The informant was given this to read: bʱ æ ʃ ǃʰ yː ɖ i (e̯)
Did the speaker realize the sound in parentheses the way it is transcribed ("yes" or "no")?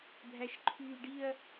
no